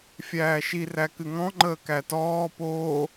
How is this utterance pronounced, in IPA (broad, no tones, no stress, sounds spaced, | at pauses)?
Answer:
fʲ æː ʃ i r æ k ɨ ŋ ɔ̃ ŋ͡ǃ əː k æ t ɔː p oː